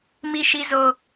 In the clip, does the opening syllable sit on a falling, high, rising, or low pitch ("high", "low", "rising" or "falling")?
high